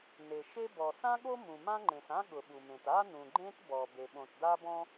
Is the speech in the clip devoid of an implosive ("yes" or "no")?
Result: no